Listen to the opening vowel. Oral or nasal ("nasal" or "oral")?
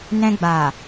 nasal